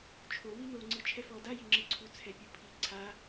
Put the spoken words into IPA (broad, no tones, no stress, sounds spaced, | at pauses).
t͡ʃʰ o w i n̪ o ŋ͡ǀ ɯ t͡ʃʰ ɛ f ɔ d a j i ŋ͡ǁ ɯ ǀʰ u t͡sʰ ɛ pʲ u pʰ i ǀʰ a